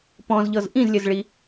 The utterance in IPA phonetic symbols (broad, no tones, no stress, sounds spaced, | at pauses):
p ɔ̃ z ʎ ɤ z ʔ ĩ z lʲ ə z ɭ i